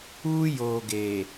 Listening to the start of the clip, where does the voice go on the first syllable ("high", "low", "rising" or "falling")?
high